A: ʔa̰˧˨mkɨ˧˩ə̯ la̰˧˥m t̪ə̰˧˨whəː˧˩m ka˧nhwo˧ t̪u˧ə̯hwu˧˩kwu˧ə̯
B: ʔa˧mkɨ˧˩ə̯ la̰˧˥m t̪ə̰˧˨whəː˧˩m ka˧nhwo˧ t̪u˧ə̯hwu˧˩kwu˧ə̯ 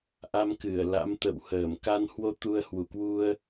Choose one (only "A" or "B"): B